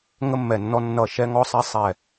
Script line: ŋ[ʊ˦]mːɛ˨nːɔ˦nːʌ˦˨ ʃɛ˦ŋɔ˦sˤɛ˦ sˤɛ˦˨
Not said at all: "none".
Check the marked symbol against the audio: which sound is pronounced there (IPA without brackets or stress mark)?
ə˦